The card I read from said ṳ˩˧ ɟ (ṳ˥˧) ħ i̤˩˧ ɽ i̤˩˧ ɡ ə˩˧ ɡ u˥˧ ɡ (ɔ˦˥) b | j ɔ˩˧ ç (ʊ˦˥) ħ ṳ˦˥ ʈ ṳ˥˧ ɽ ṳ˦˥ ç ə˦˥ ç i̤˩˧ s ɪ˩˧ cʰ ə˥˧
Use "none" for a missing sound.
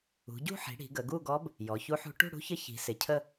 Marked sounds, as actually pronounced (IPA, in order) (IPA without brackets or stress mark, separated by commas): ṳ˥˧, ɔ˦˥, u˦˥